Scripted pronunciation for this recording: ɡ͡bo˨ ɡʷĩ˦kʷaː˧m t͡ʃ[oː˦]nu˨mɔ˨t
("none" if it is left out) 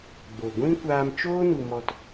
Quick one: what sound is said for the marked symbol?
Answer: oː˦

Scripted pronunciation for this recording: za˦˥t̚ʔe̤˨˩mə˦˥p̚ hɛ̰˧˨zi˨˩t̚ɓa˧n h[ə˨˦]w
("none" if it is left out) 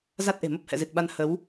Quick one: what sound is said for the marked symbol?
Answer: ə˨˦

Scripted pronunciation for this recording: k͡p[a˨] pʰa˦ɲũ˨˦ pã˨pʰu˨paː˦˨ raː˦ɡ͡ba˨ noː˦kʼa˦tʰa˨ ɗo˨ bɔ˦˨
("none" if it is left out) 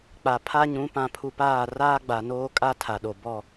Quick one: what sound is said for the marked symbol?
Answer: a˨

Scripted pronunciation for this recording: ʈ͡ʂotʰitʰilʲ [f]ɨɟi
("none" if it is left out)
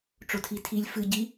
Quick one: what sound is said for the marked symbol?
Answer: f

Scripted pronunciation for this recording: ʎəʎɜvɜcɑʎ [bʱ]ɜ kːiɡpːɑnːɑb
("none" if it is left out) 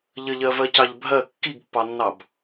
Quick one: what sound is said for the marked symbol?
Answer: bʱ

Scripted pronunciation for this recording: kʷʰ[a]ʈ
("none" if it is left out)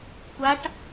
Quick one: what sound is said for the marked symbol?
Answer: a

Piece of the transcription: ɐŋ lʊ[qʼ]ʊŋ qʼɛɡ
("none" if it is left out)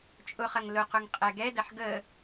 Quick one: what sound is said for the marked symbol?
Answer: q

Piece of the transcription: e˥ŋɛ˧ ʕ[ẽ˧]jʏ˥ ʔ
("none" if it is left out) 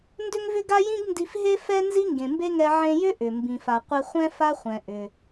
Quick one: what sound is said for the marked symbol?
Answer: ẽ˧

